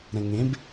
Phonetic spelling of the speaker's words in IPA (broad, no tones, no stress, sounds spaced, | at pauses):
ɾ ɛ̃ ŋ ẽ b